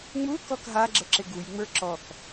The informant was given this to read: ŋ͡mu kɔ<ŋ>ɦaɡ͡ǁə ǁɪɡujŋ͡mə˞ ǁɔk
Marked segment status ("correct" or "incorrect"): incorrect